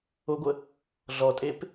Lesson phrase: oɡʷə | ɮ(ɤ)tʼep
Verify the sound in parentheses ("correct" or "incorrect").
incorrect